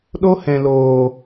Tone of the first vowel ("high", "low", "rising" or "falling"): high